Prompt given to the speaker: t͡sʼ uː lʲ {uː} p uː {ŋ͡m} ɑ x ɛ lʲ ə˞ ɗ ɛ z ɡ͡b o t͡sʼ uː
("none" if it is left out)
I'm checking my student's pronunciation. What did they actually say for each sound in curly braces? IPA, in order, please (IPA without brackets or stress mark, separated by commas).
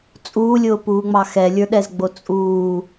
ʊː, ŋ͡m